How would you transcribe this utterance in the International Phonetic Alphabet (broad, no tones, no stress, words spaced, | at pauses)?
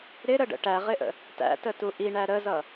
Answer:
ɾɪɾəɖə̰ ʈæʁɪʔə̰ | tæ̰tətu ʔiɳæ ɾəzʌ